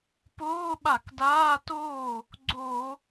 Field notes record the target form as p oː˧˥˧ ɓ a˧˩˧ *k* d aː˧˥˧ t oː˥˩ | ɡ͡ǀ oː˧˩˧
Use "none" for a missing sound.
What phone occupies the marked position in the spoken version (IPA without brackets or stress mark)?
k